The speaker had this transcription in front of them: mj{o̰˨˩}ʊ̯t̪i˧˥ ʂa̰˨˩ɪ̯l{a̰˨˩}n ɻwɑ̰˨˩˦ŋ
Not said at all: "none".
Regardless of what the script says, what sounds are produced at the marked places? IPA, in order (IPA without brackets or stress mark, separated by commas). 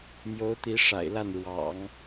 o˧˥, a˥˩